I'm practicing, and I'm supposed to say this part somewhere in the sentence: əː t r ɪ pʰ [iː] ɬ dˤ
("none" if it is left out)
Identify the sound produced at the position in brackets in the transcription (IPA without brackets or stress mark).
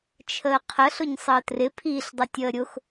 iː